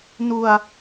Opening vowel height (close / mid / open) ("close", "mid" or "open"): close